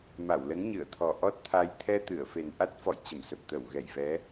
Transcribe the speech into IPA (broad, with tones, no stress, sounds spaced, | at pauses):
m a˧˩ w l ə˨˦ n ɲ ɨ˧˩ ə̯ t̪ʰ ɔ˨˩ ʔ ɔ˦˥ t̚ t̪ʰ a˧ j t̪ʰ ɛ˧ t̪ ɨ˧˩ ə̯ f e˨˩ n ʔ a˦˥ t̚ f ɔ̰˧˨ j t͡ɕ ə˧˩ m s ə˨˩ p̚ t̪ ə˧˩ w ɣ ɛ˧˩ j v ɛ˨˦